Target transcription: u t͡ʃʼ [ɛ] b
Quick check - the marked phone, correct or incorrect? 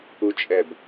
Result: correct